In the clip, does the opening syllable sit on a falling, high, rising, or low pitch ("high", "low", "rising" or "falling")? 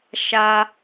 high